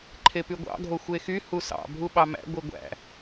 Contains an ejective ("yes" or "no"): no